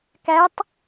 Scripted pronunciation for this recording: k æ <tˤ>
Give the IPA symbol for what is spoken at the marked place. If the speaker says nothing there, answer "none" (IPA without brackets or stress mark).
tˤ